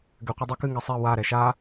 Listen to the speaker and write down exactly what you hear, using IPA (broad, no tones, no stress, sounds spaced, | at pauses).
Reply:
ɡ ɘ qʷ ɘ dˤ ɛ k ɨ ŋ ɛ sˤ i w a ɾ ɛ ʃ a